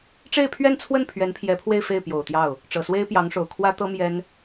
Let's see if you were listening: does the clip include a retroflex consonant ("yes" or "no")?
yes